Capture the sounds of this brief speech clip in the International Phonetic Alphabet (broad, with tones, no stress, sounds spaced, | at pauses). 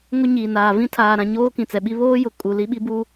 ŋ o˦ ɲ iː˨ n aː˨ v ĩ˦ tʰ aː˨ ɾ ã˨ ɲ oː˦ k ĩ˨ t͡s ɛ˨ ɓ i˦ β oː˦ j ʊ˨ kʼ u˨ l i˦ ɓ i˦ b u˦